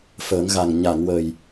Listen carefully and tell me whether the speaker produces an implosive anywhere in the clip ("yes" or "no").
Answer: no